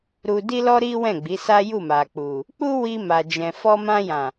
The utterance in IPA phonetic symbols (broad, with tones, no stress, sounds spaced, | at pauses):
ɾ u˧ d i˦ l ɔ˦ ɾ i˦ w ɛ̃˦˨ ɡ͡b i˨˦ s a˦ j u˦˨ m a˨ k͡p u˨ | k͡p u˦ w i˧ m a˨ d͡ʒ ɛ̃˨ f ɔ˧ m ã˧ j ã˨